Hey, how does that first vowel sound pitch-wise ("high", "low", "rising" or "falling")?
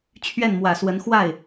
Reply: falling